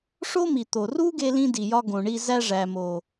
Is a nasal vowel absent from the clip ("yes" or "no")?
no